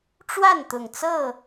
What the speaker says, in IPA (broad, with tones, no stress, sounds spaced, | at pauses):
ʈ͡ʂ w a˥˨ n t̪ ʊ˨˩ ŋ t͡s ɤ˥˨